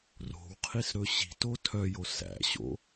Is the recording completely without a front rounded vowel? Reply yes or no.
no